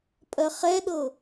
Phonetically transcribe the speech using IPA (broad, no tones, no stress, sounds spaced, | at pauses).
pʼ ɜ χ ɛ ɗ ɤ